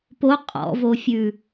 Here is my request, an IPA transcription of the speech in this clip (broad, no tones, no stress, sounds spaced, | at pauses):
p o qʼ ɔ̰ v o fʲ ʉ